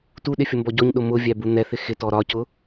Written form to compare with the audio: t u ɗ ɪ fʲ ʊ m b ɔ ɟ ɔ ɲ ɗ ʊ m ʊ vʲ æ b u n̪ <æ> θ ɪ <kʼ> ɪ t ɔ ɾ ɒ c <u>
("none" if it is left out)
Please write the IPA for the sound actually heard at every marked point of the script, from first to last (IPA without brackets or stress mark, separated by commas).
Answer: ɛ, x, ʊ